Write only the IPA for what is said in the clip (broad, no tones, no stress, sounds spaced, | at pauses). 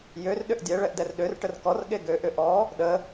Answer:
j ø r ɗ ʏ ʔ dʲ ɛ ɭ ɛ ʔ d ɛ r ɗ ø r ʈ ə r k ɔ r ɠ e ɡ ø ʔ ʏ ʔ ɔ | ɗ ə